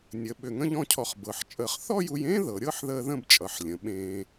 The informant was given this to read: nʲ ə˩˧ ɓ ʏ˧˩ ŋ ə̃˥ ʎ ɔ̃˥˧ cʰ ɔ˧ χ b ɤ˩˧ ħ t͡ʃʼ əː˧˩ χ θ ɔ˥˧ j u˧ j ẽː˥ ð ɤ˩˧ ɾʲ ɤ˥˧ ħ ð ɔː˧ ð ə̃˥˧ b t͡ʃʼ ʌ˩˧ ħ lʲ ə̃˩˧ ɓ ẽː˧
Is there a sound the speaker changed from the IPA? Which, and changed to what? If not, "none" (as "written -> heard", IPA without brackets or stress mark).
ɔː˧ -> əː˧